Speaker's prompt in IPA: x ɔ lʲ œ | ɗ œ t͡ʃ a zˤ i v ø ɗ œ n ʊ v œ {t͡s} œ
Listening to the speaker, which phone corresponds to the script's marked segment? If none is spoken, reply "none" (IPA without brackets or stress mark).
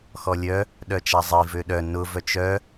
t͡ʃ